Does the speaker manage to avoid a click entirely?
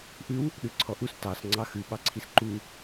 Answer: no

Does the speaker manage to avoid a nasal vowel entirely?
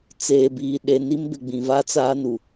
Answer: no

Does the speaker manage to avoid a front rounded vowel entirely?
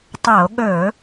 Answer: yes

